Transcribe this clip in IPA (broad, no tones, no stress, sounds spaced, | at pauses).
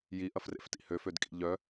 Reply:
j i ʔ ɐ f r ḛ f t ḭ h ø f ø d kʼ ḭ ʎ œ